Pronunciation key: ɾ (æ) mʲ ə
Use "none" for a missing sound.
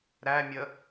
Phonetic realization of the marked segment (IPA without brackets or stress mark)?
æ